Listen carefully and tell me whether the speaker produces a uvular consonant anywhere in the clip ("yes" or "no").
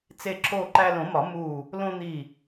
no